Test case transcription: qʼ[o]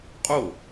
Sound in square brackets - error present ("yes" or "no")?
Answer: no